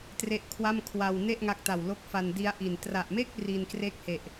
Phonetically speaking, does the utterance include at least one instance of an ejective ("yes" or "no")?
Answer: no